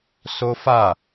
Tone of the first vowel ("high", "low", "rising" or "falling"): high